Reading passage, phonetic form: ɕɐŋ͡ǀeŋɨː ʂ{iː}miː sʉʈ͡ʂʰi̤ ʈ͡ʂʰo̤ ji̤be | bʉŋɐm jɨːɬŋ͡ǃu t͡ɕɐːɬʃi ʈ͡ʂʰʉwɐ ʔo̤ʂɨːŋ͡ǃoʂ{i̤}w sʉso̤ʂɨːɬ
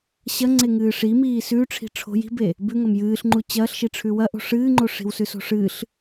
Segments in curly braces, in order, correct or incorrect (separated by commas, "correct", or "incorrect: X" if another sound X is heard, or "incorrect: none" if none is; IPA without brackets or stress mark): incorrect: i, correct